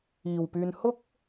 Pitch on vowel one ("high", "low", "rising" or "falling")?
low